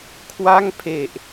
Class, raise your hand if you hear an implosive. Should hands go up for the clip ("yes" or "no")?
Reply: no